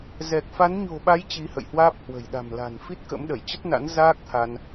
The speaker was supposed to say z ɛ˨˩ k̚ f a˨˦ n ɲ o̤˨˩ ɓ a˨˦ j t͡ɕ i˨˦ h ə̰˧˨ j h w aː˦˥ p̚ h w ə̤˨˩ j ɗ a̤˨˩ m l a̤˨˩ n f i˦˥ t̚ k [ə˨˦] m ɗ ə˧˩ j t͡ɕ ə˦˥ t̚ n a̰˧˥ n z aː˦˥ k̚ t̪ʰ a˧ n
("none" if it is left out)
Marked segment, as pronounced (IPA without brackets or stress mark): ə̰˧˥